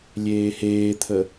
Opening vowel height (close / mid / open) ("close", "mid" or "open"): mid